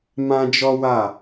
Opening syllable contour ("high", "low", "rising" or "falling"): high